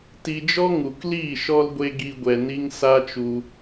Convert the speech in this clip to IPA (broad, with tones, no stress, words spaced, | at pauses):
ti˧d͡ʒɔ˦ ŋu˨kliː˦˨ ʃɔ˧lɡʷe˧ ɡi˦ɡʷɛ˧ ni˦ŋsa˦t͡ʃu˧